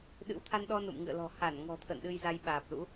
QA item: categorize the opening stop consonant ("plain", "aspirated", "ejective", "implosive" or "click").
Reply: implosive